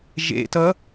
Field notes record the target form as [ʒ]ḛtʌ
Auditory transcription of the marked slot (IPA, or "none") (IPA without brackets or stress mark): ʒ